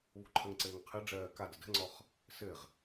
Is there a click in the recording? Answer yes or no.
yes